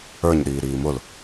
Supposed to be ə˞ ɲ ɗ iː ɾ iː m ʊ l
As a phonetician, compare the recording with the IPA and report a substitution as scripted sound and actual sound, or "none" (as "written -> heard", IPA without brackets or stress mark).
none